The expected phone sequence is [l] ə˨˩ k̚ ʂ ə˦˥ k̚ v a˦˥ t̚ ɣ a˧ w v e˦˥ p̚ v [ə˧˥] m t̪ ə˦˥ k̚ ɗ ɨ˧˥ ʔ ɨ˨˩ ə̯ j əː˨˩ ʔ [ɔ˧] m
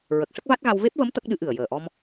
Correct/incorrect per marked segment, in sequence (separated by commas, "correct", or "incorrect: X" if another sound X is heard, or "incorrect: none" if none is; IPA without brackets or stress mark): incorrect: ɹ, correct, correct